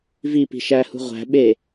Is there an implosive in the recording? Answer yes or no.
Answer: yes